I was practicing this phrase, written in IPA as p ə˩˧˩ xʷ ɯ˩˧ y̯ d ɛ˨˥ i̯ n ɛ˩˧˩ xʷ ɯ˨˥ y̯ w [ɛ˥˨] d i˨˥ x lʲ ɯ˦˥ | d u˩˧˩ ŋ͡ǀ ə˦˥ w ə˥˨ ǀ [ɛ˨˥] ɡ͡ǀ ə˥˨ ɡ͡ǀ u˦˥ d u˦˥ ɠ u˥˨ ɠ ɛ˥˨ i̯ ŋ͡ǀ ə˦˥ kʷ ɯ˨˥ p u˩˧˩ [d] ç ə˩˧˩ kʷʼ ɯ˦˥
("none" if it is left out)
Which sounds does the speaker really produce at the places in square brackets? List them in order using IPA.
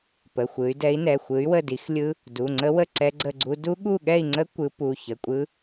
ə˥˨, ɛ˦˥, none

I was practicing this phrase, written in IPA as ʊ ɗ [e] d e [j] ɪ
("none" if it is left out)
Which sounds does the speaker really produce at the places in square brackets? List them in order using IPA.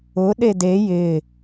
e, j

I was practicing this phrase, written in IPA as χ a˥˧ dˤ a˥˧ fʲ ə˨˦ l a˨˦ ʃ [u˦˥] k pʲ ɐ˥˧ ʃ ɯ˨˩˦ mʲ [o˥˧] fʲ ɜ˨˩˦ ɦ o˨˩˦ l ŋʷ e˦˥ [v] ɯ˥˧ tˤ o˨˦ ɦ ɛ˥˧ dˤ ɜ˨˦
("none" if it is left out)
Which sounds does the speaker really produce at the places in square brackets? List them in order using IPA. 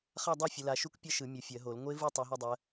u˦˥, o˨˦, v

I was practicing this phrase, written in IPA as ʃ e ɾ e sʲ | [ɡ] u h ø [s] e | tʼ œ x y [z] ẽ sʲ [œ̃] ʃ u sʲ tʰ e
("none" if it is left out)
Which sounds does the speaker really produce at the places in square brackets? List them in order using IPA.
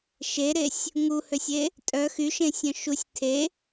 ŋ, sʲ, ʃ, œ̃

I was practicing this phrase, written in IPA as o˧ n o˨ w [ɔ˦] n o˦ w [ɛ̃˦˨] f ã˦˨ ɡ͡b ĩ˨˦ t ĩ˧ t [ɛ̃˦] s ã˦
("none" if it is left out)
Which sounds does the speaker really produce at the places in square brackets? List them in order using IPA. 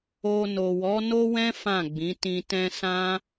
ɔ˨˦, ɛ̃˦, ɛ̃˦

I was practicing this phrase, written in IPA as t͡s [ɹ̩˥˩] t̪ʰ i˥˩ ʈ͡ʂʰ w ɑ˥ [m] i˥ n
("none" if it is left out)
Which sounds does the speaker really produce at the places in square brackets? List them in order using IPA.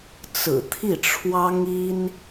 ɹ̩˨˩, ŋ

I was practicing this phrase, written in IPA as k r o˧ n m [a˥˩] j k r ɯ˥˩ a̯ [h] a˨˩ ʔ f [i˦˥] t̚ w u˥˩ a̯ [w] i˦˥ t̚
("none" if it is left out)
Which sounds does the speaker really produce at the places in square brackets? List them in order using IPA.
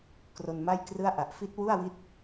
a˥˩, ʔ, i˦˥, w

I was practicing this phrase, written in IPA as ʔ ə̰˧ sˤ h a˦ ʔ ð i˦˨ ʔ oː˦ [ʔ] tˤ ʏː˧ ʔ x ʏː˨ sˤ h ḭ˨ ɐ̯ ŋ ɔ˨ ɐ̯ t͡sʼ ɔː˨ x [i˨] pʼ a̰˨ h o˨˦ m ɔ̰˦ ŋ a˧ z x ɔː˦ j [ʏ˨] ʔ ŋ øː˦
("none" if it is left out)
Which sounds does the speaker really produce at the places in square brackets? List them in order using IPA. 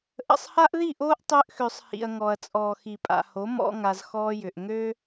ʔ, i˨, ʏ˨

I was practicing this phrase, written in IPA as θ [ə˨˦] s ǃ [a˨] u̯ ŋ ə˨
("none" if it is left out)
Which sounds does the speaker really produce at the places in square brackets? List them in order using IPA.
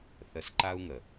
ə˨˦, a˦

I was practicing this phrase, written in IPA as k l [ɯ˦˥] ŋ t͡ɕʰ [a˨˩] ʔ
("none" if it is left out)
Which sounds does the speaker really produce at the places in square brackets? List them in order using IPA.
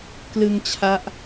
ɯ˧, a˦˥

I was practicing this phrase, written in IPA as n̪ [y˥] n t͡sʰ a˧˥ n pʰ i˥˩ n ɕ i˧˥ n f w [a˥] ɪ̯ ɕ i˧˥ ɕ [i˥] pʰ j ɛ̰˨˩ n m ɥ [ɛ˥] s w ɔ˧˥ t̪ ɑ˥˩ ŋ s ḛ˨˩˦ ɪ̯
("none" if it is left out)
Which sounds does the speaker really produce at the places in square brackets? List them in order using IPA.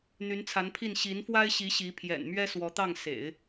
y˧˥, a˥, i˧˥, ɛ˥

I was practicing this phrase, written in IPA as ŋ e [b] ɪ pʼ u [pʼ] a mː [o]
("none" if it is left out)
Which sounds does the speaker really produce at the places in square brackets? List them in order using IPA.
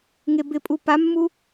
b, p, u

